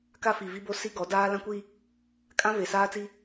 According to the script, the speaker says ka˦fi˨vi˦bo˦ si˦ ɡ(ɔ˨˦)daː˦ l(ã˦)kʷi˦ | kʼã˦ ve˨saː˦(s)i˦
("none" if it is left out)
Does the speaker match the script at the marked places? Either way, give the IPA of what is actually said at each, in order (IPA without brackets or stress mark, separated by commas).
ɔ˨˦, ã˦, t͡s